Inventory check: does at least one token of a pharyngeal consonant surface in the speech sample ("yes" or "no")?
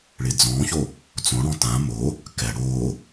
no